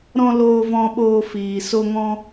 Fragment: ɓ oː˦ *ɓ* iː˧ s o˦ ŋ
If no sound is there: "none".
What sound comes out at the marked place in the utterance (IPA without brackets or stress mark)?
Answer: f